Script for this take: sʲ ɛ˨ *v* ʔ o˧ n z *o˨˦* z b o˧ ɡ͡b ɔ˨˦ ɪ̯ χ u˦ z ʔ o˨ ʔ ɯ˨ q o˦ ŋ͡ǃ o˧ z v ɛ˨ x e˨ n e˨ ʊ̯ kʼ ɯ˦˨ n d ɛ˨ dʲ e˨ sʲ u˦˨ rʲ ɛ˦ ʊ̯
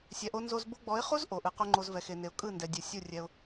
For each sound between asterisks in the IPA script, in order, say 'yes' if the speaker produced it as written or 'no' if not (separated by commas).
no, no